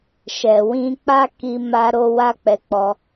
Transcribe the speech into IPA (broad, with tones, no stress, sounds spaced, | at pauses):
ʃ ɛ˨ w ĩ˧ k͡p a˦ k i˧ m a˧ ɾ o˧ w a˦ k͡p ɛ˧ k͡p ɔ˧